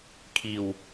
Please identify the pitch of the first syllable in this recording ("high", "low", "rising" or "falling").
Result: low